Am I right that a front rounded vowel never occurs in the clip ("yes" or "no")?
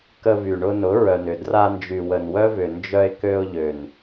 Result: no